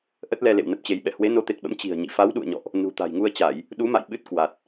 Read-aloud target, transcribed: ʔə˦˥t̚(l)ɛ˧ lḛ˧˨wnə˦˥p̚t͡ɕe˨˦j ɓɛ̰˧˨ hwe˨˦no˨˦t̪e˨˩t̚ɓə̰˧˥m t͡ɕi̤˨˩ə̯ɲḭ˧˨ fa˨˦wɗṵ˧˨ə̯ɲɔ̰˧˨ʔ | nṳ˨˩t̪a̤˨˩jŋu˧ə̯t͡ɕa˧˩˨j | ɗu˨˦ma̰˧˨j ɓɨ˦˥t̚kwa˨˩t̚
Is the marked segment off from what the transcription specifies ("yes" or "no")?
no